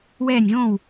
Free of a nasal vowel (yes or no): no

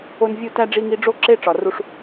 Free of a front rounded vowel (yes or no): yes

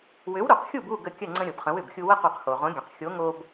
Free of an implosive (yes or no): yes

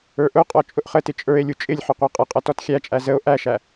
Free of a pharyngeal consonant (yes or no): no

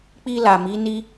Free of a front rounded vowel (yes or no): yes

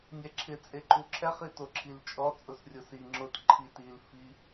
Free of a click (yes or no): no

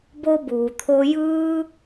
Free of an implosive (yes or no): yes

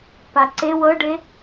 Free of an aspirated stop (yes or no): yes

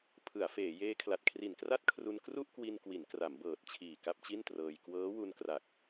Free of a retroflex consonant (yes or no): yes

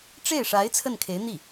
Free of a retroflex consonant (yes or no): no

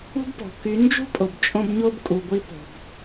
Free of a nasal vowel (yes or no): no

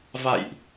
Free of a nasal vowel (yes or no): yes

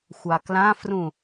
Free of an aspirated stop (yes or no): yes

